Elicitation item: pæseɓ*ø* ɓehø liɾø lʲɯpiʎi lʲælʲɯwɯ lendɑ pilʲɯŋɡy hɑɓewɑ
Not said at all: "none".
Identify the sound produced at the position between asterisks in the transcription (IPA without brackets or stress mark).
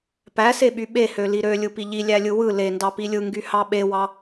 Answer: y